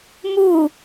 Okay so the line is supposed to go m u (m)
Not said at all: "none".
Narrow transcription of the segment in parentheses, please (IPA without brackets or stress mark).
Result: none